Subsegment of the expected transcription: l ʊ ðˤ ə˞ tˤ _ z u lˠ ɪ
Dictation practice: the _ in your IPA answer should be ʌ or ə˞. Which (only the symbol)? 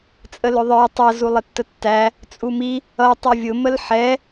ʌ